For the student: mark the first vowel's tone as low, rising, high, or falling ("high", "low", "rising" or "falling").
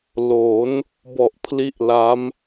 rising